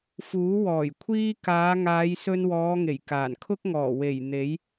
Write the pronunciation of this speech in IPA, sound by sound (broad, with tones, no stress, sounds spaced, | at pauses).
f uː˨˥ w ɔː˨˩ j kʷʰ iː˥ k aː˨˧ ŋ aː˨˧ j s ɵ˧ n w ɔː˨˧ ŋ e˨˩ j k aː˨˩ n kʰ ʊ˥ k̚ ŋ ɔː˨˩ w e˨˩ j n̪ e˨˥ j